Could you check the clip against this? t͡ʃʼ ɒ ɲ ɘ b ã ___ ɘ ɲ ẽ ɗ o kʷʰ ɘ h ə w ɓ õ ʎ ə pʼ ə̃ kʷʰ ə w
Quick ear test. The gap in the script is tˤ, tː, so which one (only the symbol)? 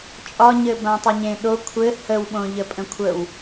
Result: tˤ